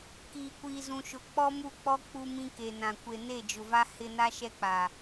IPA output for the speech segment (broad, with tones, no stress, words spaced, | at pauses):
kiː˨kʷiː˨zũ˨ʃʊ˨ k͡pɔ˦mu˦˨k͡pɔ˦ k͡pu˦mĩ˦ke˨nã˨ kʷe˨ne˦˨d͡ʒʊ˨va˦ hɪ˦ na˦ʃɛ˦k͡paː˨